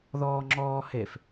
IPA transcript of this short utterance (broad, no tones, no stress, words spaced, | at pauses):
ðɔːŋ͡ǁɔːhef